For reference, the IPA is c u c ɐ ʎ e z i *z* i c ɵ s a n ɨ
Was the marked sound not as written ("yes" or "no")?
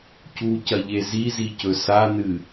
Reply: no